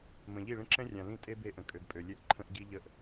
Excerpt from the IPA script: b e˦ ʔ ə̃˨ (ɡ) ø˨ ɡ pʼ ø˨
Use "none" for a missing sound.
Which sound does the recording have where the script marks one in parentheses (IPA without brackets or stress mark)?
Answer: kʼ